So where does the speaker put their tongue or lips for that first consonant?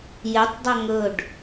palate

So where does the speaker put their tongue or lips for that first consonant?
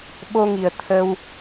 lips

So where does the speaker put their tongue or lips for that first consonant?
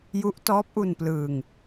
palate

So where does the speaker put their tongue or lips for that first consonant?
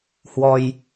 throat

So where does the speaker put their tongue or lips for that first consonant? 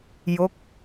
palate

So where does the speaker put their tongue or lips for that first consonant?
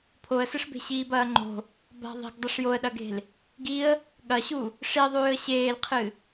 lips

